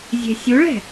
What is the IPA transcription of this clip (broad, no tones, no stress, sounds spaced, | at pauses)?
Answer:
zʲ e̤ sʲ u ɭ ɛ̤